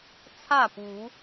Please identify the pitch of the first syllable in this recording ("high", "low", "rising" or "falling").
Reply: falling